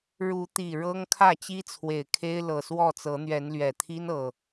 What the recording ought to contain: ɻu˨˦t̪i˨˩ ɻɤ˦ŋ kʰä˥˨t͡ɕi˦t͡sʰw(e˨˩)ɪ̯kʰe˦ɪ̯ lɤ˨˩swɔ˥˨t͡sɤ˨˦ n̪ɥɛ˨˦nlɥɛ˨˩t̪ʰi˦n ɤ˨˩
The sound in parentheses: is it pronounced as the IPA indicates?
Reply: yes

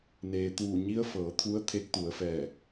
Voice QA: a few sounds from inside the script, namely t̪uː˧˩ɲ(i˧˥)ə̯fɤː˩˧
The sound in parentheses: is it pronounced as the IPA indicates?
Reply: yes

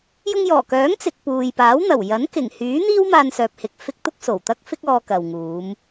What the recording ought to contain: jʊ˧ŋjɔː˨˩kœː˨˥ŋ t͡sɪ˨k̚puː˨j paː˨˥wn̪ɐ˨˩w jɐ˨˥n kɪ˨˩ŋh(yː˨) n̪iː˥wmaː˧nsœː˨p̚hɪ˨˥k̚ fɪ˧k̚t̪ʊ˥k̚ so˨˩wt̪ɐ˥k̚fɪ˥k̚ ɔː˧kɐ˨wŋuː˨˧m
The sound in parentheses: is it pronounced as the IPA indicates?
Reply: no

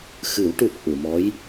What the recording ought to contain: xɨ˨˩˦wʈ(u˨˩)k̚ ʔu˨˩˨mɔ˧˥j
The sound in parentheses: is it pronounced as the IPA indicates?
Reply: yes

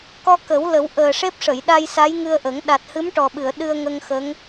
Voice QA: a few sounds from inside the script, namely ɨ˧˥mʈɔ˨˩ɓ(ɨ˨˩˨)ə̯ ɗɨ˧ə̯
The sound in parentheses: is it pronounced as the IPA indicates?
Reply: yes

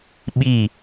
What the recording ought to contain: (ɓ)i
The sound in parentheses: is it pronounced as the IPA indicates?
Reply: yes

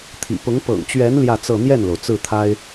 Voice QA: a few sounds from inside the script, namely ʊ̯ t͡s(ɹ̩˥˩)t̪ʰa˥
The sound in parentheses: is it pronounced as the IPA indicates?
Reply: yes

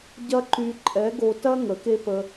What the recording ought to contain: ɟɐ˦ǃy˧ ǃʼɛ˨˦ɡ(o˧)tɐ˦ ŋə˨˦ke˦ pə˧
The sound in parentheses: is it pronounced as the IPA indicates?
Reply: yes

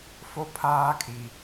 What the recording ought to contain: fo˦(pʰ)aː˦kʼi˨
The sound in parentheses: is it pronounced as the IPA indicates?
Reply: yes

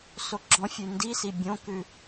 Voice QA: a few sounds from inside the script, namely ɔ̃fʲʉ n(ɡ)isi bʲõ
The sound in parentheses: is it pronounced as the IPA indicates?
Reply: no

